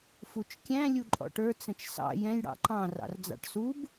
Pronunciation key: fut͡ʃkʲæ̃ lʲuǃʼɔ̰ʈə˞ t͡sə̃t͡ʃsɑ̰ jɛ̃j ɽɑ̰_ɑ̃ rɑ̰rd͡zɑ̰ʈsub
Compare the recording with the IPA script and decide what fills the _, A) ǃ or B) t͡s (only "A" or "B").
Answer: A